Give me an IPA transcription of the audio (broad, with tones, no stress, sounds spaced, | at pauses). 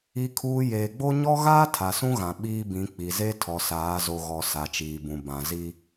i˨ kʰ uː˨ j eː˨ ɡ͡b o˦ ɲ ɔ˦ ɣ aː˦ tʰ a˨ s ũ˦ ɣ ã˨ ɓ iː˦ b ĩ˨˦ k͡p i˨ z e˦ tʰ ɔ˨ s aː˨˦ z o˨ ɣ ɔ˨ s a˨ t͡ʃ iː˨ b ũ˨ b ã˨ z i˦